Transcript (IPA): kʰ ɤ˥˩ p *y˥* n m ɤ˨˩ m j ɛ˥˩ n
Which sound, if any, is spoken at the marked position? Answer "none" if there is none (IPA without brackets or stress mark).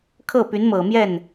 y˧˥